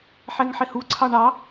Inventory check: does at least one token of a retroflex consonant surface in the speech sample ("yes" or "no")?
yes